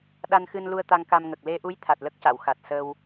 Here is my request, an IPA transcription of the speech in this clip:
ɗ a˧ n x ɨ˧ n l u˧ ə̯ t̪ a˧ ŋ k a˧ m ŋ ə˨˩ k̚ l e˧ ʔ u˧˥ j t̪ʰ a˨˩ t̚ l ə˦˥ k̚ c a˨˩˨ w x a˨˩ t̚ s ə˧ w

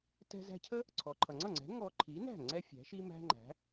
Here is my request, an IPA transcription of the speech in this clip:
t ɛ̤˧ z æ̤˧ cʰ ə˥ | ǀʰ ɔ˩ ǃʰ ʌ˩ ŋ͡ǀ ʌ˥˩ ŋ͡ǀ ɛ̤˩˥ ŋ ɔ˧ ǃʰ i˩˥ n æ̤˥˩ ŋ͡ǀ ɛ˥ fʲ æ̤˩˥ ʃ i˥ m æ̤˥ ŋ͡ǃ æ̤˩˥

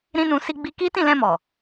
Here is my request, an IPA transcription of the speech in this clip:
ɾ ĩ˦ n ũ˧ s i˧ ɡ͡b i˧ k i˦ t ĩ˦˨ l ɛ̃˧ m ɔ˨

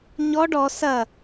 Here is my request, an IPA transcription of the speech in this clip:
ɲ ɔ ɖ ɔ s ɐ

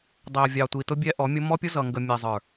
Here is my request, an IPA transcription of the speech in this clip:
dˤ æ˨ vʲ ɑ˨ tʷ i˨ t ʊ˦ bʲ ɛ˦ ʔ ɔ˨˦ mʲ ʊ˦ m ɔ˦ pʲ ʊ˦ z ʌ˨ ŋ ɡ ə˨ mʲ ɛ˨ zˤ ə˞˨

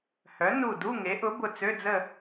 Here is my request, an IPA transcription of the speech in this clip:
h œ˩˥ n u˧˩ d u˧˥˧ ŋ e˩˥ ʔ ʊ˩˥ b ʊ˧˩ t͡s ø˧˥˧ d͡z ə˥˨

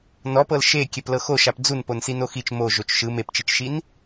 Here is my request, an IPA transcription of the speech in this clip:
n ɔ p ɤ l ʃ e kʲ ɛ p l ɤ x o ʃ a p d͡z u n p o n s i n o x i t͡ʃ m o ʒ o t͡ʃ ʃ ɯ m e p t͡ʃ i t͡ʃ ʃ i n

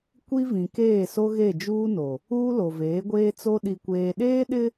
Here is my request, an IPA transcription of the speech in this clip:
kʷ i˦ v ĩ˨ k eː˦˨ s o˦ ɣ e˦˨ d͡ʒ uː˦ n o˨ | uː˦ l o˨ v eː˨˦ ɡʷ eː˦ t͡s o˦ ɗ i˨ kʷ eː˨ ɗ eː˦ ɗ ɪ˦

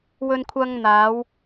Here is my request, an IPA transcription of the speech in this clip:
w ɵ˧ n kʷʰ ɐ˧ ŋ n̪ aː˨˧ w

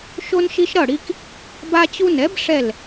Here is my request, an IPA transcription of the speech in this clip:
ʃ o˦ n ʃ i˦ ʃ ɾ ʌ˥˩ ɽ i˦ k | b a˦ t͡ɕ u˦ n ɛ˩˥ b ʂ ɛ˥˩ l

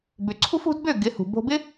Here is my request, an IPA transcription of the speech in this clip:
b ʏ˩ ǀʰ ṳ˥ f ṳ˩˥ d b ø˥˩ ɡ ɪ˩˥ h ṳ˩ b o̤˧ b ɪ˥

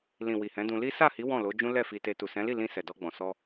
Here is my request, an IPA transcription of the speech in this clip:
l ĩ˨ w i˨ h ɛ̃˨˦ d ũ˧ l i˦ s a˦˨ h i˨˦ w ɔ̃˦˨ l o˨˦ d͡ʒ ũ˦ l ɛ˦˨ f i˧ t e˧ t u˨ s ɛ̃˨˦ l i˦˨ l ĩ˧ s ɛ˨ d ɔ˧ ɡ͡b ɔ̃˨ s ɔ˧

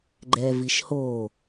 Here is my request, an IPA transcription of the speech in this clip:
ɡ͡ǃ ɛ v i ʃ h o

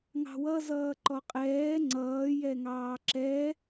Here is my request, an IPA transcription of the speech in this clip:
ŋ ɑ̤ w ʌ z ʌː ǃ ɔ qʼ ɛː ŋ͡ǀ ʌː j ɛ ŋ ɑː ǁ ɛ

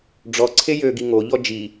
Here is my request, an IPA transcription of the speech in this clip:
ɖ͡ʐ ɔ ǀʰ e j ø ɡ i ŋ o ʎ ɔ d͡ʒ i

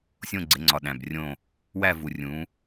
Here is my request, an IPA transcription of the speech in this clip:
sʲ õ˦˨ ɡ͡ǀ e˩˧ ŋ͡ǀ ɒ˨˩ ɗ æ̃˨˩ b rʲ õ˦˨ | w æ˦˨ v u˨˩ rʲ ũ˩˧

